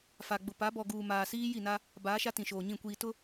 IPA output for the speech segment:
fa˨ɡ͡bʊ˨ pa˨˦bɔ˨ ɡuː˨maː˨siː˦ ji˦˨na˦ | baː˨˦ʃa˦ tĩ˨ʃoː˨ɲĩ˦˨ kʷiː˨tʊ˦

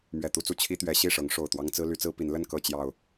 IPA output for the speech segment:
mɥɛ˨˩t̪u˥˨t͡su˥˨ t͡ɕʰi˦t̪ɥɛ˨˦ ɕi˥˨ʂɤ˨˦ŋ ʂo˨˩ʊ̯t̪wɑ˦ŋt͡sɹ̩˦ ly˨˦t͡sɹ̩˦ pi˨˦nlə˥˨n kɤ˥˨t͡ɕjɑ˨˩ʊ̯

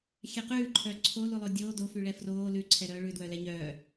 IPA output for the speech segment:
xʲɛqʉːǃʰœ ǀʰo lulˠodʲoː dofyɭɛ froː lʉǀʰɛ ɾœːɭʉdwœlɛ ɲœː

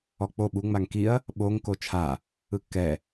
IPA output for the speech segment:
ɔk͡po ɓu ŋ͡maŋkiɐ̯ | ɓoŋ kot͡ʃʰa | ɯkːɛ

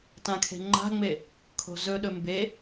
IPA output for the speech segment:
tãkʰe̤ŋ͡ǃa̤ŋ͡me | kʰo̤zɵɗɵ mbe

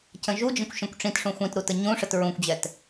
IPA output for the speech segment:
cə̃ʒud͡ʒə̃kʷ ʃə̃kʷʈ͡ʂĩtʂũ xʷĩt ɾutəɲũʂət ɹũkʷd͡ʑɛt

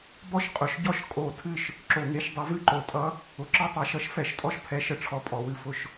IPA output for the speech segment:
bɔ˥˩ʃqʼʊ˩˧ʃɟɔ˥˩ʃ kʼo˧˩˧ tʰɨ˥˩ʃ | ǁo˧˩˧ŋe˧˥ʃdˤʊ˧˥ vɨ˥˩ǃo˧˩˧tʼʌ˧˥ | ʊ˩˧ǁɨ˥˩tˤʌ˧˩˧ ʃʌ˧˥ʃ fɛ˧˩˧ʃtʼɔ˥˩ʃ pʰɛ˧˥ʃə˧˥ʈ͡ʂʰɔ˧˥ pʼɔ˩˧wɨ˥˩fʊ˥˩ʃ

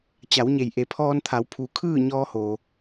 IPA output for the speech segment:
t͡ɕa˩˧wɲe˩j ʔe˩˧pʰɔː˧nt̪ʰa˩˧w pʰu˩kʰɯː˥˨ ɲɔː˧hoː˩

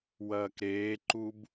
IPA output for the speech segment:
wɐːkɾeːǃub

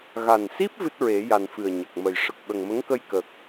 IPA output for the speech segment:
ɣa˨˩nsi˦˥p̚ vɨ˦˥t̚ɹe˨˩˦ja˨˩n fɨ˨˩ə̯ɲə˨˩k̚mə˨˩j ʂə˨˩k̚ɓə˨˩ŋmə˧˥ŋkə˧j kə˨˩k̚

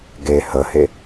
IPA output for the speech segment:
ɡe həhe

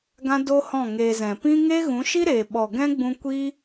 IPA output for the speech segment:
ɡã˦ do˦hɔ̃˦˨ŋeː˧zɛ̃˨ pĩ˦ ŋeː˦ɣũ˨˦ʃi˦ɾeː˨ ɓɔ˨ɡɛ̃˦ɡ͡bũ˧ kʷi˦

